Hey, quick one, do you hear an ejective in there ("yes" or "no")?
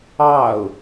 no